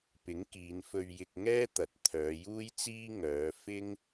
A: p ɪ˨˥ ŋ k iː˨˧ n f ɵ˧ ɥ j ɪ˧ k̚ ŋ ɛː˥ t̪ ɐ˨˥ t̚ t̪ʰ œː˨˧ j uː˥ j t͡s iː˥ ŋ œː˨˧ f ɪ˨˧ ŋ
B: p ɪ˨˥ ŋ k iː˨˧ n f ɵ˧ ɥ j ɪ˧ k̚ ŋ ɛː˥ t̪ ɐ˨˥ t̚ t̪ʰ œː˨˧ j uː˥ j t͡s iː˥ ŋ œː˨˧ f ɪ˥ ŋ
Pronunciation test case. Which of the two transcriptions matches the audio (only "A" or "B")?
B